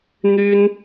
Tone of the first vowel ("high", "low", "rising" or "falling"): high